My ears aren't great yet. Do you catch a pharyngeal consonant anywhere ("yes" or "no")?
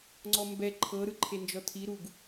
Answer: no